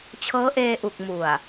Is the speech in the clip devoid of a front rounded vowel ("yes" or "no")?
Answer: yes